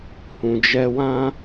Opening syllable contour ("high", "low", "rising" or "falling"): low